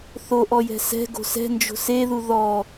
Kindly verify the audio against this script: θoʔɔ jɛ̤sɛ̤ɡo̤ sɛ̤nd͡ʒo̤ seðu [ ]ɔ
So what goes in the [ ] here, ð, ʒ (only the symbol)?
ð